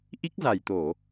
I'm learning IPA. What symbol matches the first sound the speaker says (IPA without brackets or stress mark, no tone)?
ʔ